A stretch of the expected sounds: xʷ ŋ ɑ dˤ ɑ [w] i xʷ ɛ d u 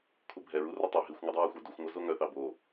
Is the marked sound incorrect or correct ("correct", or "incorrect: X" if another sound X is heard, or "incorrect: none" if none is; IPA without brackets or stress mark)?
incorrect: ɹ